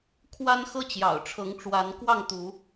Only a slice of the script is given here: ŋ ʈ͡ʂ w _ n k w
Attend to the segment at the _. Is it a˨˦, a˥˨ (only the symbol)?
a˨˦